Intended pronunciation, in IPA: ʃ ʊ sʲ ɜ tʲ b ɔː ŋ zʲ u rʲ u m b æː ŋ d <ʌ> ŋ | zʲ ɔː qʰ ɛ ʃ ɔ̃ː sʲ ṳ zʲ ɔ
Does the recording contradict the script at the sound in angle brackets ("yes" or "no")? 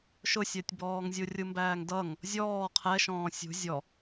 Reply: no